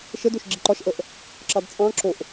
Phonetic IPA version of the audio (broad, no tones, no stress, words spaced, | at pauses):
ʃədoʃ ɡ͡ǁiǃɒʃʔəʔ | ǁɑdt͡sʼɑ̃ǁoʔ